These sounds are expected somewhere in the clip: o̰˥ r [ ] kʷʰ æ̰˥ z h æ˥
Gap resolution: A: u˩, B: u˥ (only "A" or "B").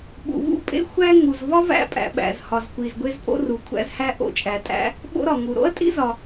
A